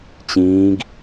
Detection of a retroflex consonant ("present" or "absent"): absent